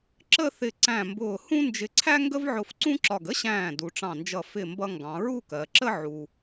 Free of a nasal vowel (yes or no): no